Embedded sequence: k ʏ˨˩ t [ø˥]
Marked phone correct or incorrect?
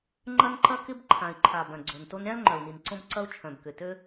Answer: correct